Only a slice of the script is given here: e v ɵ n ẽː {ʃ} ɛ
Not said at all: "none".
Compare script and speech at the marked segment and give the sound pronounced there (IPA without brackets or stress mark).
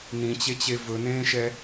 ʃ